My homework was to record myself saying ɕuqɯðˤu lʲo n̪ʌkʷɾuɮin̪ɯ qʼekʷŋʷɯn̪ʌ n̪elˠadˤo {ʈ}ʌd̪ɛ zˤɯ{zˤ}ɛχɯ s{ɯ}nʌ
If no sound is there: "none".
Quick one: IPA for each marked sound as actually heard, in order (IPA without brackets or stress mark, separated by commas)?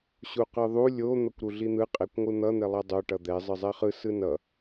ʈ, zˤ, ɯ